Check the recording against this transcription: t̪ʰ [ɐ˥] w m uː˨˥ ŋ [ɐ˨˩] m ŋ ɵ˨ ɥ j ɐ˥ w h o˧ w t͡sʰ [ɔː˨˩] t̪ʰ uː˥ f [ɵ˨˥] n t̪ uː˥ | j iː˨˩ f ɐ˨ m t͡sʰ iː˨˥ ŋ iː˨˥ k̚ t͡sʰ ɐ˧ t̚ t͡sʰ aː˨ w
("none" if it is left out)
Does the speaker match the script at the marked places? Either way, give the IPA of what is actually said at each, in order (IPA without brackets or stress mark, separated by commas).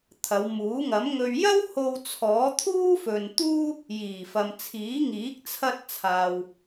ɐ˨˧, ɐ˨˥, ɔː˨˥, ɵ˨